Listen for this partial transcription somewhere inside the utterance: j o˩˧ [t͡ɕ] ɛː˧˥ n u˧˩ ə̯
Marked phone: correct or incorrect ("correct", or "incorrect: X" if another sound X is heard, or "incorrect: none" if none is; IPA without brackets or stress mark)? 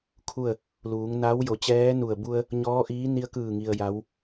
correct